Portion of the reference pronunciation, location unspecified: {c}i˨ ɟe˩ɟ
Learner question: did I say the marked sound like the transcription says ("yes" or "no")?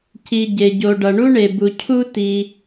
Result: yes